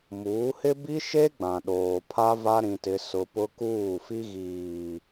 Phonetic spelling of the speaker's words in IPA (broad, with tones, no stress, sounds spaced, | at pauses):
m uː˨˦ h ɪ˦ b i˦ ʃ e˦ ɡ͡b ã˨ ɗ oː˨ pʰ a˦ v a˦ ɾ ĩ˦ t ɪ˦ s ʊ˦ p ʊ˦ k uː˦˨ f i˦ ɣ iː˨